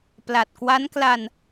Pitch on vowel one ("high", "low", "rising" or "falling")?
low